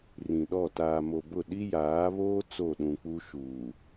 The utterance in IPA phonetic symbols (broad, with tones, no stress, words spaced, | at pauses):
rĩ˨ɗɔ˦˨ taː˨mo˨bʊ˦˨ ɗi˦jaː˨˦βoː˦ t͡so˦˨ɗũ˨k͡pu˦ ʃuː˨